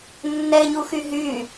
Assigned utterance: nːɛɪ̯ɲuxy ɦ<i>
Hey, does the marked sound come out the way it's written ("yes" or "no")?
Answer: no